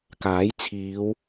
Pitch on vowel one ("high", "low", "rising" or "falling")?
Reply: rising